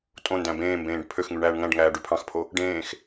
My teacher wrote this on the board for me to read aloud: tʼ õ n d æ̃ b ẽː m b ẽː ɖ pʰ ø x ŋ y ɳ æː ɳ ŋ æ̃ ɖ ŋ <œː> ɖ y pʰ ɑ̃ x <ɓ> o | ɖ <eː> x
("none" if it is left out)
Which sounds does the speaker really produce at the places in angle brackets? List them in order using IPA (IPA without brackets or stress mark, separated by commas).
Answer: æː, pʰ, ẽː